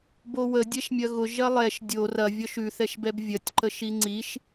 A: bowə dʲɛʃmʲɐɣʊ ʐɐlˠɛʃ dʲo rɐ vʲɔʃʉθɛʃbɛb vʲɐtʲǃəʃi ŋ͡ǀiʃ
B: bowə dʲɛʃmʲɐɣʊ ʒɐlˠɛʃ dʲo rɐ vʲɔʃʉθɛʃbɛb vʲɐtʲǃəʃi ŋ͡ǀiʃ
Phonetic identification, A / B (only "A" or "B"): B